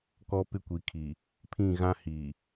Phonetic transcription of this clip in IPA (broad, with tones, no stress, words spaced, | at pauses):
kɔ˦pɪ˦kʷi˨kʰi˨ | pʰĩ˦˨ɣã˦ hi˨